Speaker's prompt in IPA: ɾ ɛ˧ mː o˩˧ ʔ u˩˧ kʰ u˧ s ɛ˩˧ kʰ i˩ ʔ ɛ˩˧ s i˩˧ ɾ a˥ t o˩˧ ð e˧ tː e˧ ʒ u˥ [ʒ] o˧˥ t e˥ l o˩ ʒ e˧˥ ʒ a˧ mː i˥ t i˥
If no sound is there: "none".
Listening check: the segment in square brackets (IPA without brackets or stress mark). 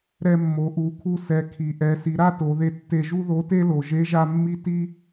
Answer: ð